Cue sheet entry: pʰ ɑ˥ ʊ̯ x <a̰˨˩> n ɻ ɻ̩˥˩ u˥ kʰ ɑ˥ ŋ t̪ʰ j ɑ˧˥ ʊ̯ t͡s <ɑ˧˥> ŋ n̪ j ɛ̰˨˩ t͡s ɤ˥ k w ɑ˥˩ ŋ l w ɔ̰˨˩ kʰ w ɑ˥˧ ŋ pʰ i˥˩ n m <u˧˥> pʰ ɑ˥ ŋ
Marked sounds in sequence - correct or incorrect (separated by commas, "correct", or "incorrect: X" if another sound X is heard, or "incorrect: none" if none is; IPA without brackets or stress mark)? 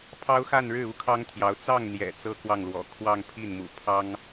incorrect: a˥˧, incorrect: ɑ˥˩, incorrect: ṵ˨˩